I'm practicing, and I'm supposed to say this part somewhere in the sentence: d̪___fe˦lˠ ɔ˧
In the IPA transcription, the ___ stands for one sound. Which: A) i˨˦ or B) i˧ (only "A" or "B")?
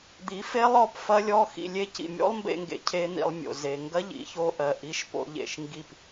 A